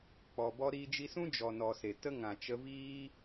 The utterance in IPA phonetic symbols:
k͡pɔ˨bɔ˧ ɾiː˧d͡ʒi˧sũ˦ d͡ʒɔ˨nɔ˨se˨tə˧ ŋã˨t͡ʃə˧viː˦

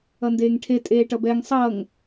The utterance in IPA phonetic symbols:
ʌndeːŋʈʰe tʼeːʈʌbɛŋ sˤʌːŋ

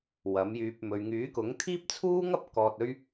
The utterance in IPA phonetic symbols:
wɐ˨˥mjyː˧p̚mɵ˧ɥ ŋyː˨˥kʊ˨˥ŋ t̪ʰiː˥p̚t͡sʰuː˥ ŋɐ˥p̚ kɔː˨t̚ɵ˧ɥ

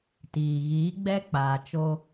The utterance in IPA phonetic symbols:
tiː˨ ɣiː˨˦ɡ͡bɛ˦k͡paː˨t͡ʃo˦

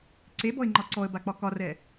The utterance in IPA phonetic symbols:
ǀebɔɪ̯ŋ͡ǃɒ ǀɔə̯bak͡pɒ kɒrɛ

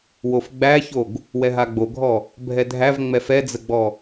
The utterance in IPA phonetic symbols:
wofɡ͡bæçoɡ | wɛɦaɡ͡boɡʱɔ | bʱɛdʱæv ŋ͡mɛfɛd͡zəɡ͡bɔ

